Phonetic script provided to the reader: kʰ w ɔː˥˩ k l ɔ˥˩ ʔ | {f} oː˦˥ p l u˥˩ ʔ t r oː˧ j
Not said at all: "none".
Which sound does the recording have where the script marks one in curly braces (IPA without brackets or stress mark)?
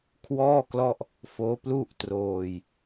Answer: f